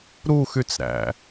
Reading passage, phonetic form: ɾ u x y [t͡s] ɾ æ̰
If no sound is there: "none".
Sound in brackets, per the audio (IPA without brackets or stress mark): t͡s